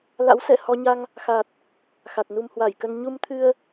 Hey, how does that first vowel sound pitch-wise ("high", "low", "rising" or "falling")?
rising